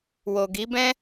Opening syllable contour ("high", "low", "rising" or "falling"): low